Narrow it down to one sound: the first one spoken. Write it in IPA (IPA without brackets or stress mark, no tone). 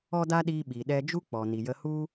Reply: ɔ